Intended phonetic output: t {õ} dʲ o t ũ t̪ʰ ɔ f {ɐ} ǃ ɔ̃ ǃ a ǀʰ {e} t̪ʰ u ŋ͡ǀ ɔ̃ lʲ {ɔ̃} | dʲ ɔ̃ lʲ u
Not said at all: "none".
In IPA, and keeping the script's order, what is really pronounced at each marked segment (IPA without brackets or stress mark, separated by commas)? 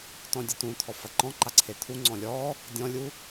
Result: ɔ̃, ɐ, e, ɔ